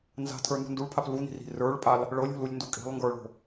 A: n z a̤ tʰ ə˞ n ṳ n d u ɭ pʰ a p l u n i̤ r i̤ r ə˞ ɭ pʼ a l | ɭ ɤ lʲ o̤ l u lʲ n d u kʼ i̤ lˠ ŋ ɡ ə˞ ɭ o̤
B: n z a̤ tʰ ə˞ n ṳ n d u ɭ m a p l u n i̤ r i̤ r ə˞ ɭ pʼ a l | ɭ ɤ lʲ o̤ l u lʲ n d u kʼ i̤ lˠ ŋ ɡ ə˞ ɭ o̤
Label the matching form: A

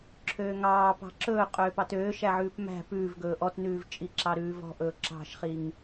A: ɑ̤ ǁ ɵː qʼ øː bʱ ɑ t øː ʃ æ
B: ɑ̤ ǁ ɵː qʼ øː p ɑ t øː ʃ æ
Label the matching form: B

